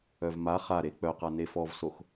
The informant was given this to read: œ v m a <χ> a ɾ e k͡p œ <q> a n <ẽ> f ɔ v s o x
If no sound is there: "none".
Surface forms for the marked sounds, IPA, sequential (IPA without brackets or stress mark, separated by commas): χ, q, e